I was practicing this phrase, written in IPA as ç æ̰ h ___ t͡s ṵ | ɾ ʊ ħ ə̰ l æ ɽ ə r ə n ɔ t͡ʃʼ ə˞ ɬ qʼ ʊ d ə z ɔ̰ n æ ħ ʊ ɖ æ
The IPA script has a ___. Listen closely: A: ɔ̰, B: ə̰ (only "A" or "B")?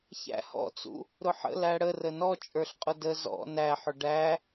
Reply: A